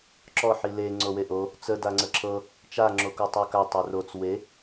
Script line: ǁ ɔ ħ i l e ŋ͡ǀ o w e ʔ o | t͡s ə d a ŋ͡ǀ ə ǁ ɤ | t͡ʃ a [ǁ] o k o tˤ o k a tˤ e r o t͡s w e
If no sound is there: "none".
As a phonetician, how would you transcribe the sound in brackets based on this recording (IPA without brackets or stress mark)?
ŋ͡ǁ